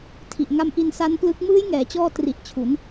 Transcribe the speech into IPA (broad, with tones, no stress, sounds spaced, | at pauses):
tʰ i˨˩ ʔ ŋ a˧ m ʔ i˧ n s a˦˥ n p l ɯ˦˥ k̚ m ɯː˦˥ j ŋ ɛː˩˦ t͡ɕ ɔː˧ t r i˨˩ ʔ t͡ɕʰ u˩˦ n